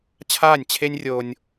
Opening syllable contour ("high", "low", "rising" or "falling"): falling